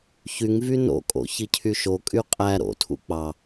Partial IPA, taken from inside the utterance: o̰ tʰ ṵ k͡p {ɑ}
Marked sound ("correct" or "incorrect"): correct